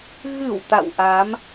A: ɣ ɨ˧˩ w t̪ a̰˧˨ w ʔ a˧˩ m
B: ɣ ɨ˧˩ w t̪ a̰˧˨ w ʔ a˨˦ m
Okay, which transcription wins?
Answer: B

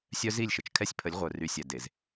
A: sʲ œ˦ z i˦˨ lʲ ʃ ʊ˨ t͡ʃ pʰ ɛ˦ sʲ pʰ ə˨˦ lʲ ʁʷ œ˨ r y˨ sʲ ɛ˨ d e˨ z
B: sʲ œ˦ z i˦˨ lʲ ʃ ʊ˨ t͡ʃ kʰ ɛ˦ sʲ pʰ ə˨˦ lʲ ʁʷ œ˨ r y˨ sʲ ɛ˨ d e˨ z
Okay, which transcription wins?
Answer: B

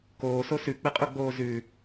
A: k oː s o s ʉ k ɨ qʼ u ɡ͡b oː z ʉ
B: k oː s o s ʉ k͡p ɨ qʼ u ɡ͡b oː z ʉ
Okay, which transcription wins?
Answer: B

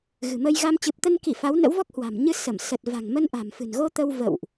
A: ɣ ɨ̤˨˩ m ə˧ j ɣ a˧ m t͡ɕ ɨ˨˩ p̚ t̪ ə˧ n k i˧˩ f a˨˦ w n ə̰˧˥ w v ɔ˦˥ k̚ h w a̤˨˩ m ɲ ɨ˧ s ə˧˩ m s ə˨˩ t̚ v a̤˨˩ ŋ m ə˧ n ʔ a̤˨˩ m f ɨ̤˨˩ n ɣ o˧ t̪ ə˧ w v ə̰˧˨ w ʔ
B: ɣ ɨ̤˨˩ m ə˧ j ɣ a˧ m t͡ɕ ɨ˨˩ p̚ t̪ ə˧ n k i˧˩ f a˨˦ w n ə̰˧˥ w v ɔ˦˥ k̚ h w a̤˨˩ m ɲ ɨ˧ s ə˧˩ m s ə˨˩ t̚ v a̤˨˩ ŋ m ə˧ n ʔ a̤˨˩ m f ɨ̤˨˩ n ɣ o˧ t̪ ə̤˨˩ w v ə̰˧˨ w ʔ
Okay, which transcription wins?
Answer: A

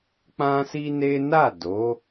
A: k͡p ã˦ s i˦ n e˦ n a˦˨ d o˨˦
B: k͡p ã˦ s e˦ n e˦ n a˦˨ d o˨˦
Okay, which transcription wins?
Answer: A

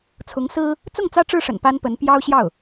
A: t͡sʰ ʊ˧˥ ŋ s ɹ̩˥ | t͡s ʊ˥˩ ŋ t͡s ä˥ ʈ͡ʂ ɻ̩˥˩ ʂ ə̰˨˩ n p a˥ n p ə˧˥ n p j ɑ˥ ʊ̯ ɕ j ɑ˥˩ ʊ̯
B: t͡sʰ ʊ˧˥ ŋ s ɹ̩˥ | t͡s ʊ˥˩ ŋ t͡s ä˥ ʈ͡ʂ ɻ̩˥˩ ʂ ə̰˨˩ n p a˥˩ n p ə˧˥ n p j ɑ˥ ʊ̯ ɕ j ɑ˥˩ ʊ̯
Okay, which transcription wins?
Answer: A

